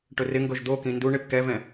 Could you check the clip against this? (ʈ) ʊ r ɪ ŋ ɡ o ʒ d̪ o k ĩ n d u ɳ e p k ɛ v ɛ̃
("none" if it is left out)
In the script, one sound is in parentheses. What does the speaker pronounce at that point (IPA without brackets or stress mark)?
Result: ʈ